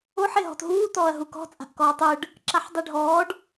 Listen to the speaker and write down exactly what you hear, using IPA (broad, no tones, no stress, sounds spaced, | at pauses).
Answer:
o ħ e ɦ ɔ̤ t ɦ uː t ɔː ɐ̯ ɦ u k ɔ̤ t͡sʼ a̤ ʔ k ɔː tˤ ɯ ɖ | ǁ a ħ dˤ i ɖʱ ɔː ɖ